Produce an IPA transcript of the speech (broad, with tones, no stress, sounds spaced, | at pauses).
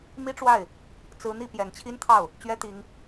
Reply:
m i˥ ʈ͡ʂ w a˥˩ ɪ̯ | t͡s ɹ̩˧˥ n̪ i˥˩ p j ɛ˨˩ n t͡ɕʰ i˥ n t̪ʰ ɑ˥˩ ʊ̯ | t͡ɕ ɥ ɛ˥ t̪ i˧˥ ŋ